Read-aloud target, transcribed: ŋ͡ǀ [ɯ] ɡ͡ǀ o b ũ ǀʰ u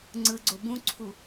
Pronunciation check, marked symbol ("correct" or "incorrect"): correct